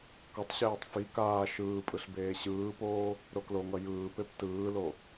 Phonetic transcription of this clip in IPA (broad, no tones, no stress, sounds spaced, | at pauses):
k ʌ tˤ ɕ eː tˤ f i k aː ʃ ɯː pʼ ɯ ɬ b eː ɕ ɯː p oː | ɾ o k l o ŋ ʌ j ɯː p e p t ɯː l o